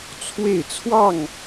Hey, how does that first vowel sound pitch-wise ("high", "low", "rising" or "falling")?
falling